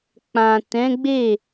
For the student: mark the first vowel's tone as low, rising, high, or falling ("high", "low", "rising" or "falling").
low